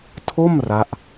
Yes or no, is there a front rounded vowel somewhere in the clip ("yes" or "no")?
no